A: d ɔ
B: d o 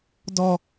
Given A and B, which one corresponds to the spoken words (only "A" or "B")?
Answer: A